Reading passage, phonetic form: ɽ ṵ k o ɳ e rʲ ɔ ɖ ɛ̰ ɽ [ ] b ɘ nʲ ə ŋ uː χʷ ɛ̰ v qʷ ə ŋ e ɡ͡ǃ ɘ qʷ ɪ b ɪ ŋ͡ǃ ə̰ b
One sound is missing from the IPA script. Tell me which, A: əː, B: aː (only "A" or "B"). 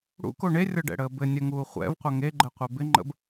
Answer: A